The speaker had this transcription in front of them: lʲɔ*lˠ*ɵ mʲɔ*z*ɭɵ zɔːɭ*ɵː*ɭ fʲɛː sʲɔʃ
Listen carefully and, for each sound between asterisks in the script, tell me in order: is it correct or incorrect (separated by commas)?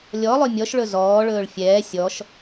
correct, incorrect, correct